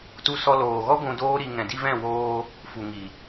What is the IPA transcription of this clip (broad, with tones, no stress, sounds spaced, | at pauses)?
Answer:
t u˦ s ɔ˦ l oː˨ ɣ ɔ˦ ɡʷ ũ˧ d oː˦ ɾ i˧ ŋ ɛ̃˨ d i˧ v ɛ̃˦˨ w oː˧ | f u˨ ŋ i˨